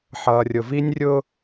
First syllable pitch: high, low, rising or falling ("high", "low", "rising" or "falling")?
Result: low